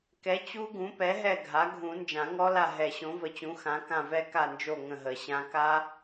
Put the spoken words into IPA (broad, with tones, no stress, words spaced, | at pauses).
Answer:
kɛ˩˥ t͡ɕu˦˥ɡũ˩˥pɛ˩˥ ɦɛ˦˨ ɡʱa˩˥ ɡʱũ˨˩˦nd͡ʒã˨˩˦ŋɔ˦˥la˦˨ ɦɛ˨˩˦ɕõ˩˥və˨˩˦t͡ɕũ˩˥ xã˩˥kã˦˨vɛ˦˥ ka˦˨nd͡ʒo˦˨ ŋə̃˦˨ɦə˨˩˦ɕã˦˥ ka˦˥